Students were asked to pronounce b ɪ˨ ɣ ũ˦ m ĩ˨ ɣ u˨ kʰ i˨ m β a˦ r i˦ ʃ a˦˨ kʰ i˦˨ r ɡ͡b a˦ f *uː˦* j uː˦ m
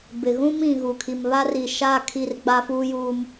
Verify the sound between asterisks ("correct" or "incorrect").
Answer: correct